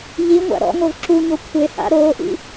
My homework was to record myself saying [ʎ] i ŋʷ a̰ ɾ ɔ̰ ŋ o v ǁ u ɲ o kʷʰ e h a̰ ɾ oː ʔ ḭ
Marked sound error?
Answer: no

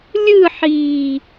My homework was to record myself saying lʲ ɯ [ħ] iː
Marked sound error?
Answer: no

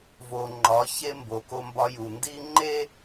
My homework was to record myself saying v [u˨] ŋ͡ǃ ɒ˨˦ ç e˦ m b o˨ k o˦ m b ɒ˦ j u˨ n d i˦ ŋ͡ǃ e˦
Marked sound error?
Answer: yes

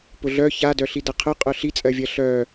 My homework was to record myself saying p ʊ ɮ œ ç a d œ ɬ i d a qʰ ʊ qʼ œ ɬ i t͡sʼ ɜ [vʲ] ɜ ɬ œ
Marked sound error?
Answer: no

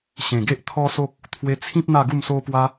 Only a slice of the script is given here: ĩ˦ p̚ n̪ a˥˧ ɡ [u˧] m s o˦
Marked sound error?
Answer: yes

